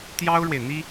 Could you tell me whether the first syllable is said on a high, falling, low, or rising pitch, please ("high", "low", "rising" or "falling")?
high